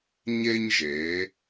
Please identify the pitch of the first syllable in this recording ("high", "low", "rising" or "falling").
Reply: high